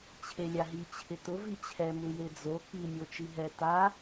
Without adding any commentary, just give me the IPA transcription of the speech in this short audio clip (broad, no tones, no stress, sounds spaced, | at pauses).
t͡ɕʰ e lʲ a ɦ i t͡ɕʰ ɪ t ʊ v i t͡ɕʰ ɛ m u j e d͡z o k i mʲ o t͡ʃ i ɦ ɛ t a